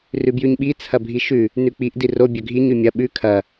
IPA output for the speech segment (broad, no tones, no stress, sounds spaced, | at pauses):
r ʉ b j ʉ ɲ ɓ i t͡sʰ ɐ bʱ i ʃ ʉ | n ʉ k͡p i ʔ d i r o bʲ ɵ ɡʱ i ɲ ʉ mʲ ɐ ɓ ʉ kʰ ɐ